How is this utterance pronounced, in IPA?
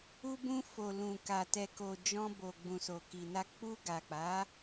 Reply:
u˧ b ũ˧ f o˨ l ũ˨ k a˨ t ɛ˨ k o˨ d͡ʒ ɔ̃˧ b o˨ ɡ͡b ũ˨ s o˨ k i˨ n a˧ k͡p u˧ ɡ a˨ k͡p a˨˦

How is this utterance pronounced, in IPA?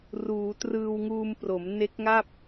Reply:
r uː˩˦ t r ɯː˧ w ŋ uː˧ m p r o˩˦ m n e˦˥ k̚ ŋ a˥˩ p̚

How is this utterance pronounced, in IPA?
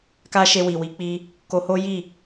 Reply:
k a˦ ʃ e˧ w i˨ w i˨˦ k͡p i˧ | k o˧ h o˦ j i˦˨

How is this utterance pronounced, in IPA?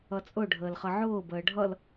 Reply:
ʌ t͡sʼ ʊ ɖʱ əː l χ ʌ ʕ ʊː b əː ɖʱ ʌ l

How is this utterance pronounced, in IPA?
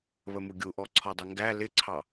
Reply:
β ə m u ɡʲ u ʔ ɔ ǀʰ ɒ dˤ ʌ ŋ ɡ æ l ɪ ǀʰ ɑ

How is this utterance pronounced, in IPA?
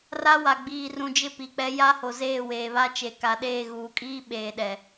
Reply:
r a˦ w a˨ ɡ͡b iː˨ r ũ˨ d͡ʒ ɪ˦ p i˨ k͡p ɛ˦ j a˦ h o˨ z eː˦˨ w eː˨ β a˦ t͡ʃ e˨ k a˨ ɗ eː˦˨ ɣ uː˨ kʼ iː˦ ɓ eː˨ ɗ ɛ˨

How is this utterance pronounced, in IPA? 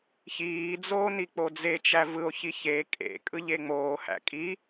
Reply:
ç iː d͡z oː n i k͡p o d͡z e t͡ʃ æ v ɯ o̯ ç i ç e kʼ ḛ kʼ ɯ ʎ e ŋ͡m oː h æ̰ kʼ i

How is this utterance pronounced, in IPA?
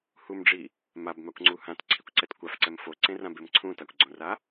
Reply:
h u m ɖ͡ʐ i | m a b m a kʷ ŋ͡ǀ u h ã t ǀʰ i kʷ ǀ ɛ t kʷ a f ǀ ɛ m f o ǀ ẽ r ã b e m ǀʰ ũ t a kʷ ɡ͡ǀ õ r a

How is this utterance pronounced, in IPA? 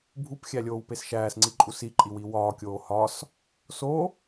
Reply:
bʱ u p xʲ æ lʲ oː w p e s ʃ æː s ŋ͡ǀ i ǃʼ u s i ǃʼ i w i w ɒː kʲ oː h ɒ s | s o

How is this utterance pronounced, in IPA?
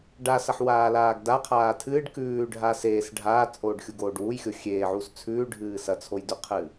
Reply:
ɖ a s ɐ ħ w aː l aː ɡ d a qʰ aː tʰ ɨː ɖ k ʉː ɖʱ a s eː s ɖʱ aː t͡sʼ oː ɖ xʲ u ɡ oː ɖ w u j xʲ o xʲ eː ʕ u s t͡sʰ ʉː ɖʱ ɨː s ɐ t͡sʰ o j d ʉ qʰ ɨː

